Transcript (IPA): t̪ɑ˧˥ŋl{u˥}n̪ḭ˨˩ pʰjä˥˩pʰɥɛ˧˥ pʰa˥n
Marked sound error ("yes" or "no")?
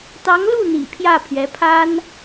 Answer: yes